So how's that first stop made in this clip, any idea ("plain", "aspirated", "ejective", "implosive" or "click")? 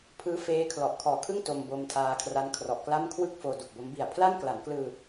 aspirated